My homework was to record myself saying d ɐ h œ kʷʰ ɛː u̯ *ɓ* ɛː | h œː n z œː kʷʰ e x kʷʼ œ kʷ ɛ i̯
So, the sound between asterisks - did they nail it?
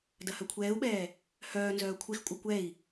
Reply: yes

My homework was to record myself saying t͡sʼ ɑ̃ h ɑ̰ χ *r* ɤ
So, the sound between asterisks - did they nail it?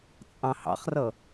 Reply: yes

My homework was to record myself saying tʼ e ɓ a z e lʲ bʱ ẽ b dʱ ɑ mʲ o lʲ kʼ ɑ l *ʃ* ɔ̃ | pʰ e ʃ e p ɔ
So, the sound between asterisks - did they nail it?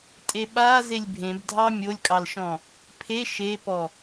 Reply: yes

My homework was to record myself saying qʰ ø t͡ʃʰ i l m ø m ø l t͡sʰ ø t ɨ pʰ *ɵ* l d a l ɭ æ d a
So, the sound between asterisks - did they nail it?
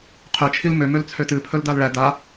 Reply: yes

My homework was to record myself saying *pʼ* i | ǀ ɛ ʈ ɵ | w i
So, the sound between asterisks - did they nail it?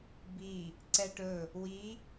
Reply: no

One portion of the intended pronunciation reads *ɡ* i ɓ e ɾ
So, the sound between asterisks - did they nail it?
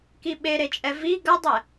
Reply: no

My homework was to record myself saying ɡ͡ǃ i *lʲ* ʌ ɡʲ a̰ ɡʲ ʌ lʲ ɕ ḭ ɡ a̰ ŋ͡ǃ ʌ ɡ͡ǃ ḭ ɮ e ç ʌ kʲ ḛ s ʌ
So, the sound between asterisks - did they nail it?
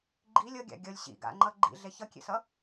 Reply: yes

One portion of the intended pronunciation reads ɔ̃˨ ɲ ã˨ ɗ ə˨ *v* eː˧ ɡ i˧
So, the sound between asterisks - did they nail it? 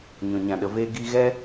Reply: yes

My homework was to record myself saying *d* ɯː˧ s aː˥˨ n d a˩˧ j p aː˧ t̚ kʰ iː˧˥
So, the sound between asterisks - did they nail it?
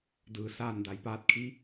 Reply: yes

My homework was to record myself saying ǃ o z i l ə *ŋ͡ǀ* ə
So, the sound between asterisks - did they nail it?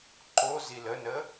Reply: no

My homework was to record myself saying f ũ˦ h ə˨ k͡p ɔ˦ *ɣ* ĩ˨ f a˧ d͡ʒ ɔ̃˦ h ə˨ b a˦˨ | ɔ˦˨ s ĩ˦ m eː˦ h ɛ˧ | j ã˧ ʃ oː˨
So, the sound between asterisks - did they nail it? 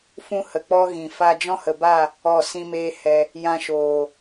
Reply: yes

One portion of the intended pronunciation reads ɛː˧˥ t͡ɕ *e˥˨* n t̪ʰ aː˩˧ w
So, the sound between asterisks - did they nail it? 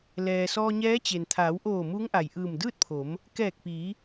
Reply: no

